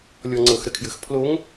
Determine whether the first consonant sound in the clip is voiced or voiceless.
voiced